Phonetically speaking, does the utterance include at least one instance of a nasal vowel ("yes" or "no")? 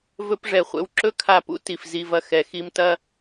no